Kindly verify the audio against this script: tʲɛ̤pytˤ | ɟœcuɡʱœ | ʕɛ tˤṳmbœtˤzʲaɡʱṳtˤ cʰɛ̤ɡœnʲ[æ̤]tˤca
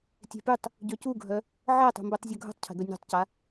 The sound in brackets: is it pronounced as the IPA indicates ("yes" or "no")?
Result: no